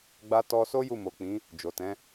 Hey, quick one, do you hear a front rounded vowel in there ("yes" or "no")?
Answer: no